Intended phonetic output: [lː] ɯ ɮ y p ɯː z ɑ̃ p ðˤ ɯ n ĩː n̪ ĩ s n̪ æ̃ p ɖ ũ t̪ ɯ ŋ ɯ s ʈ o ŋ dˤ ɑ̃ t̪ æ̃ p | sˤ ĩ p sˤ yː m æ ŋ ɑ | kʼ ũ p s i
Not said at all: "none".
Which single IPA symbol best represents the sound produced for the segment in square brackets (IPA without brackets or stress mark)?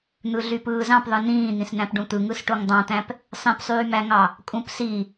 n̪